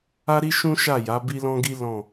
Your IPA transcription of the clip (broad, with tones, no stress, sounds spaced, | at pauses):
a˦ ɾ i˦ ʃ ũ˦ ʃ a˦˨ j a˨˦ b i˦ l ɔ̃˦ ɡ i˦ l ɔ̃˦˨